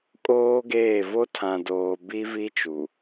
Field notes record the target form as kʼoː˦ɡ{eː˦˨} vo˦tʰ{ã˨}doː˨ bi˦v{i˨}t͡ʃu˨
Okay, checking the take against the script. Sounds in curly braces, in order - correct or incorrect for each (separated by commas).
correct, correct, incorrect